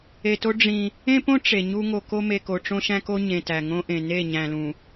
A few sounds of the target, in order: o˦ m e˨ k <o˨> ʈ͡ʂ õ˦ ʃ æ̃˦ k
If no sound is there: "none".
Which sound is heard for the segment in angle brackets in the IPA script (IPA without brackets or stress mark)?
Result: o˨